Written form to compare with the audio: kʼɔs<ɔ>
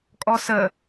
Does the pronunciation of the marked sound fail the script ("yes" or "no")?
yes